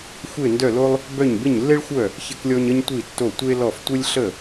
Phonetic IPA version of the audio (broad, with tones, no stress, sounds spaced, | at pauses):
xʷ e˥˨ n d œ˥˨ l o˥ lˠ | b œ˥˨ ɲ b ɪ˥˨ ɲ lː e˥ ɭ xʷ œ˥˨ | ç ɪ˥ k lʲ ɔ˥ ɲ ə˥ ɲ tʷ i˥˨ tː o˥˨ tʷ e˥ l ɔ˥˨ f tʷ ə˥ lʲ ɬ ə˥˨